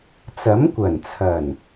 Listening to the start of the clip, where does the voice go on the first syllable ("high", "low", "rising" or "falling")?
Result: rising